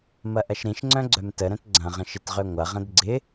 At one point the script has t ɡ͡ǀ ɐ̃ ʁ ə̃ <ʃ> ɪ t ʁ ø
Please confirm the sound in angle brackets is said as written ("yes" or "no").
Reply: yes